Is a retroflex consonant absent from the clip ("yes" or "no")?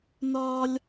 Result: yes